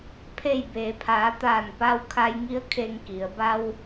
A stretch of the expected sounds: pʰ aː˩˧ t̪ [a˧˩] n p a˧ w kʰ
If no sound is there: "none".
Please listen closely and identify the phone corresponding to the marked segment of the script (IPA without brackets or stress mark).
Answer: aː˧˩